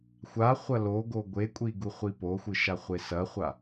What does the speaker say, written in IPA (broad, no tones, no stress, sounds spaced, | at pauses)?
xʷ a χʷ ɐ l o ɡ o ɡʷ e kʷʼ i ɡ u χʷ i p o xʷ ɨ ʃ a χʷ e s ɐ χʷ a